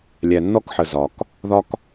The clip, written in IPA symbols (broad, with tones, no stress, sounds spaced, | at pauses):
lʲ æ˨ nː ɔ˦ k ħ ə˨ z ɒ˨ k | ð ɒ˦ k